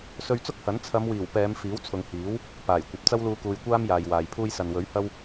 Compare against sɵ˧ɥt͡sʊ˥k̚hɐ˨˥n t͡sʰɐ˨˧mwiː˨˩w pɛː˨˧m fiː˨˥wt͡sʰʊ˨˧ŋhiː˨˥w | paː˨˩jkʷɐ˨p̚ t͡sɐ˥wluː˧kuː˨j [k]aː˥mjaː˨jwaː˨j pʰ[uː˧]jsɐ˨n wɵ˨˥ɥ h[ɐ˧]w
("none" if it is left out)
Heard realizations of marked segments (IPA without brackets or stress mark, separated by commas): kʷ, uː˧, ɐ˥